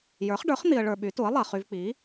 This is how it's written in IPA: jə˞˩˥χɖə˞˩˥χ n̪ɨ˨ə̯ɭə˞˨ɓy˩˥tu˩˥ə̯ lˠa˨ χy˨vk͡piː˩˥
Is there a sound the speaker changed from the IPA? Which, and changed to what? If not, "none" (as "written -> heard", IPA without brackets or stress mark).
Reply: ɨ˨ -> i˨